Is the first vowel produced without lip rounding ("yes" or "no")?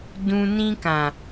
no